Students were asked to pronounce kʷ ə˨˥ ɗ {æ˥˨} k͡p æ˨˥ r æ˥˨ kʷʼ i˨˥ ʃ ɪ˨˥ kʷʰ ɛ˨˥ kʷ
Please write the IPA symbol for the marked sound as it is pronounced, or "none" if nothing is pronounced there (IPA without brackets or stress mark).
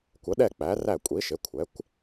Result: ɛ˥˨